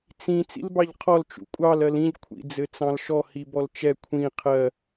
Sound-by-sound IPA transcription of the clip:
t͡s ĩ t͡s ḭ l b ɑ ʎ qʰ ɔ l t͡ʃ ṵ kʷʼ ɑ l ɜ l ĩ ʎ kʷʰ ḭ d͡z ɘ t͡s ɑ̃ l ʃ ɔ h i b ɔ l t͡ʃ ɛ kʷʰ ĩ qʰ ɜ

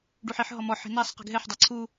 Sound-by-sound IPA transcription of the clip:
ɖ u ħ i ħ ɦ ɔ m ɔ ħ i̤ n æ sˤ q i̤ ɡ ɦ ɛ ħ dˤ æ ǀʰ u

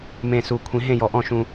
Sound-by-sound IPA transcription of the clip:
m ẽ˧˩ s u˨˩˦ kʷʰ ĩ˨˩˦ ɦ ẽ˥˨ j ɔ˧˩ ʔ ɔ̃˥˨ ʃ ũ˦

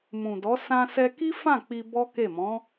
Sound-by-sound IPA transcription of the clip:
m ũ˨ d ɔ˨˦ s ã˧ s ɛ˧ k i˦ f ã˦˨ k͡p i˧ b ɔ˦ k e˦˨ m ɔ̃˨˦

